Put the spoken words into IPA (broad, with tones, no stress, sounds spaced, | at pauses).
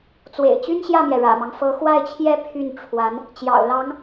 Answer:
t͡s w ḛ˨˩ ɪ̯ t͡ɕ y˥ n ɕ j ä˥˩ m j ɛ˩ ɻ ä̰˨˩ m ɑ˦ ŋ f ɤ˧˥ x w a˥˩ ɪ̯ t͡ɕʰ j ɛ˥ pʰ y˥˩ n ʈ͡ʂʰ w a˧˥ n | t͡ɕ j ɑ̰˨˩ ʊ̯ l ɑ˧˥ ŋ